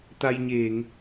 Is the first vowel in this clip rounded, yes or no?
no